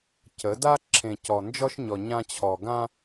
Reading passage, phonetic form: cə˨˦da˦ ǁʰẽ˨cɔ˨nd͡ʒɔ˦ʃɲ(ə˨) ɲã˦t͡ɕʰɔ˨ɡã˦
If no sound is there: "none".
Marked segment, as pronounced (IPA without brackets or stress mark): ɔ˨